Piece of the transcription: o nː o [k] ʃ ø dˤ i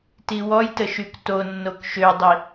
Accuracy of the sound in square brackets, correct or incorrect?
correct